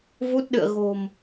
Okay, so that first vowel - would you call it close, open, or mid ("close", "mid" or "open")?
close